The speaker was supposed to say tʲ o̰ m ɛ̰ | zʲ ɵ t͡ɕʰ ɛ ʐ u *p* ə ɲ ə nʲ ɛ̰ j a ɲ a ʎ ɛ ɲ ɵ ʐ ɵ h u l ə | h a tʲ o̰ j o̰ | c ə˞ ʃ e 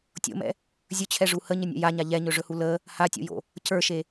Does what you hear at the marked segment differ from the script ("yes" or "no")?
yes